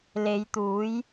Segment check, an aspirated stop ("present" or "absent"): absent